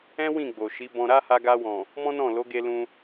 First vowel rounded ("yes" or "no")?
no